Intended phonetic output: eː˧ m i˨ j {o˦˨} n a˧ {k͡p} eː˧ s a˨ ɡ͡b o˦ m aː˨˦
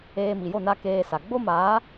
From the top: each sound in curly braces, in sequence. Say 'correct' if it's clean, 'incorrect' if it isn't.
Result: correct, incorrect

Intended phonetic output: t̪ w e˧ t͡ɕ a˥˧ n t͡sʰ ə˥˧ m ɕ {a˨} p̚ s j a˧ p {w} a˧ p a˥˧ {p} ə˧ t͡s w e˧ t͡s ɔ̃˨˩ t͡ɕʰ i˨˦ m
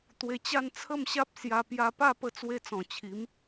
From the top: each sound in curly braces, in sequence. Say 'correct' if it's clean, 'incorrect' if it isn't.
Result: incorrect, incorrect, correct

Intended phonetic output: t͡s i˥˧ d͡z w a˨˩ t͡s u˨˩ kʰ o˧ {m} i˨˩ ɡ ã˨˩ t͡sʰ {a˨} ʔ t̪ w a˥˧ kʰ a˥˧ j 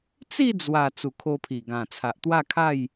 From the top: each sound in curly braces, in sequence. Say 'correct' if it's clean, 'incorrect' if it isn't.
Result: incorrect, correct

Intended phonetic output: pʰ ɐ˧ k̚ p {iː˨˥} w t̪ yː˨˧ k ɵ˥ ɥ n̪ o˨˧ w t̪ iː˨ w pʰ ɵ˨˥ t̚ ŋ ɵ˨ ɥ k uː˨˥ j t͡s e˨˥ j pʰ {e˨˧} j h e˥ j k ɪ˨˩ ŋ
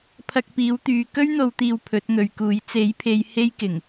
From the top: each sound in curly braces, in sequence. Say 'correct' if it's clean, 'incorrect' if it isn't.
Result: correct, correct

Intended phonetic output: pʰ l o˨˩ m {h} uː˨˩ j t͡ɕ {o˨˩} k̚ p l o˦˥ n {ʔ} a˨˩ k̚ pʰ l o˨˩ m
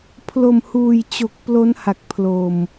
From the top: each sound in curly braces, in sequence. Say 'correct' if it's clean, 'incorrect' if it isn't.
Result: correct, correct, incorrect

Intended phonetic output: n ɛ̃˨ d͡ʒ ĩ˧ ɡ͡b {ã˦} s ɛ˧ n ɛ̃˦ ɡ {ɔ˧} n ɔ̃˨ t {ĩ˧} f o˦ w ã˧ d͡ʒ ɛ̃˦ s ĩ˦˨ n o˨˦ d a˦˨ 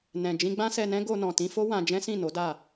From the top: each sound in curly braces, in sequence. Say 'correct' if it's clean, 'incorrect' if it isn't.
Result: correct, incorrect, correct

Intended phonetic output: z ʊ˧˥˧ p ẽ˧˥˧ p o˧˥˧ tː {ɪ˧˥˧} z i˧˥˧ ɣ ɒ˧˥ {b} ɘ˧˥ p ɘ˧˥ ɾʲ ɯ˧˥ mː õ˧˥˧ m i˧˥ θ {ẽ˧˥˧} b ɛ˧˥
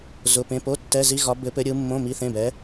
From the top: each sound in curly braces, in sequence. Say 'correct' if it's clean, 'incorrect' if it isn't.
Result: incorrect, correct, correct

